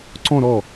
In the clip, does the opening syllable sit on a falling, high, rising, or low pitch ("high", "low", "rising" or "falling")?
falling